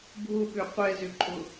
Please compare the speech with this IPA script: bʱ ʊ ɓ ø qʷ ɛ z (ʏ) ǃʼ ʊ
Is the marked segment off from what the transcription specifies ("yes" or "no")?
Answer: no